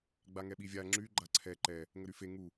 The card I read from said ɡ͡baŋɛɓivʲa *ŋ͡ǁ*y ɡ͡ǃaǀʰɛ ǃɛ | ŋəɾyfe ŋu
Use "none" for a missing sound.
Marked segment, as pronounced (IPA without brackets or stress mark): ŋ͡ǁ